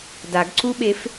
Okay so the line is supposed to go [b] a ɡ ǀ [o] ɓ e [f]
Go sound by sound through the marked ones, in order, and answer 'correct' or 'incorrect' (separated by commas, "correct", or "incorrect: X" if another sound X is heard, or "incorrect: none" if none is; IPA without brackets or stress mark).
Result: incorrect: d, incorrect: u, correct